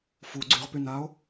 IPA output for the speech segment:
f u ɡ͡ǀ y ʁ p y n a o̯

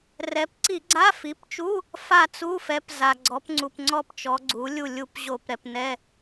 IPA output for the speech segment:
r ɛ˩˧ p ǀ i˧˩˧ ɡ͡ǀ a˧˥˧ f i˩˥ p t͡ʃ u˧˥˧ | f a˦˨ t͡s u˧˥˧ f ɛ˩˧ p z a˩ ɡ͡ǀ ɔ˩˧ p ŋ͡ǀ u˩ p ŋ͡ǀ ɔ˦˨ p t͡ʃ ɔ˩˧ ɡ͡ǀ u˩˥ lʲ u˦˨ lʲ u˦˨ p ʑ o˧˩˧ p ɾ ɛ˩ p n ɛ˧˥˧

